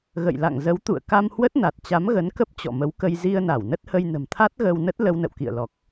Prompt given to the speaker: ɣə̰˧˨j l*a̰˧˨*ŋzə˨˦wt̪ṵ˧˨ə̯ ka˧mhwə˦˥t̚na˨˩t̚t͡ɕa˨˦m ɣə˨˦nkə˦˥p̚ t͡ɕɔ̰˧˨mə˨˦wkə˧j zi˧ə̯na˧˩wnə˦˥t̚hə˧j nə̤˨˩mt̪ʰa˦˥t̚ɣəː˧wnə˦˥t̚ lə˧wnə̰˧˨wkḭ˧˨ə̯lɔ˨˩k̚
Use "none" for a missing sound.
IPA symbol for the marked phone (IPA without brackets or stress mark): a̰˧˨